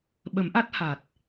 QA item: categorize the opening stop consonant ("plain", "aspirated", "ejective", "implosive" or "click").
implosive